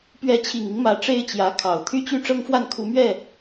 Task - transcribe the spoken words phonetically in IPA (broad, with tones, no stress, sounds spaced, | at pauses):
p ɥ ɛ˧˥ t͡ɕʰ i˨˩ ŋ i˦ ŋ m ä˧˥ ʈ͡ʂ e˥ ɪ̯ t͡ɕ j ä˧˥ kʰ ɑ˨˩ ʊ̯ t̪ʰ y˥ t͡ɕ y˥ ʈ͡ʂ ɤ˥ ŋ f w a˥˩ n kʰ u˧˥ m ɥ ɛ˥˩